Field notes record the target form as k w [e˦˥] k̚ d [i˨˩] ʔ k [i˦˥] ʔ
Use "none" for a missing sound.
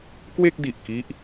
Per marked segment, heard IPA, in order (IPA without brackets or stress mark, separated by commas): e˥˩, i˨˩, i˦˥